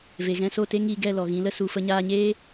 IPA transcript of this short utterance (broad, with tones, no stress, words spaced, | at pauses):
ve˨ɣɛ̃˧ so˦˨te˦ŋiː˧ ɡɛ˦˨lɔ˨ɣĩ˨˦lə˦ su˨fə˧ɲaː˧ɲeː˦